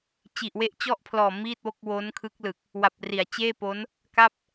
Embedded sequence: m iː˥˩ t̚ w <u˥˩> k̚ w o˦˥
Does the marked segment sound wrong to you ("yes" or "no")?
yes